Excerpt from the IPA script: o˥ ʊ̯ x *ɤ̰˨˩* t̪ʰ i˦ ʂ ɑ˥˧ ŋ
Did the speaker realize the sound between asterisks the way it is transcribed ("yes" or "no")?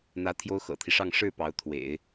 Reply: yes